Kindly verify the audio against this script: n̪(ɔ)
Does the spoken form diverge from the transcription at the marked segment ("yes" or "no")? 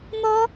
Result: no